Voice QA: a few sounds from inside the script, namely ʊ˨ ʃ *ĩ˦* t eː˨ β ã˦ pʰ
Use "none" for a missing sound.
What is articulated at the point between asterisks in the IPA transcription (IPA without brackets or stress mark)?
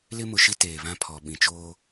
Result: i˦